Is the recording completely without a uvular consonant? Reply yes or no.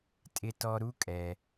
yes